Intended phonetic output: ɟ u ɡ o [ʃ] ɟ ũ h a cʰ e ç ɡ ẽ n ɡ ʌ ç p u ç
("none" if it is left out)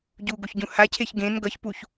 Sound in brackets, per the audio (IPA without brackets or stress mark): ç